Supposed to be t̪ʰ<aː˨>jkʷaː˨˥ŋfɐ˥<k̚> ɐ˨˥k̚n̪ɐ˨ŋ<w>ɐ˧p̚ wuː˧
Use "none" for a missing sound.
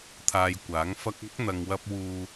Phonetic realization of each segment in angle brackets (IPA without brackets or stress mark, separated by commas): aː˧, k̚, w